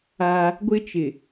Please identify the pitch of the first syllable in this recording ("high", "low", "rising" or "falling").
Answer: high